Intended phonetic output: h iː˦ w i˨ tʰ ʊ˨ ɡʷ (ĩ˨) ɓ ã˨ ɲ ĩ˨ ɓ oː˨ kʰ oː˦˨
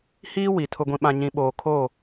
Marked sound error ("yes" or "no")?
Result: no